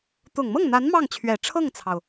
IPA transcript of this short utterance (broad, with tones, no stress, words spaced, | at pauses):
t̪ʊ˨˩ŋmɤ˥˩ŋn̪a˧˥n mɑ˥˩ŋt͡ɕʰɥɛ˨˩ ʈ͡ʂʰɤ˥˩ŋt͡sʰɑ˩ʊ̯